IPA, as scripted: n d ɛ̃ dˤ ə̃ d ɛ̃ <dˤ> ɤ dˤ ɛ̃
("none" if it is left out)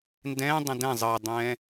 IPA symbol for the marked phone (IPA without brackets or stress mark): zˤ